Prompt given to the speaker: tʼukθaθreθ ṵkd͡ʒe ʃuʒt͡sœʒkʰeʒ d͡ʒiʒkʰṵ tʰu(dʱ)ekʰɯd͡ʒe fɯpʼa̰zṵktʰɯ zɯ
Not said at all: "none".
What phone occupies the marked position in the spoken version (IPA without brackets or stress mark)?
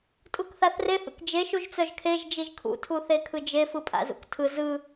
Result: θ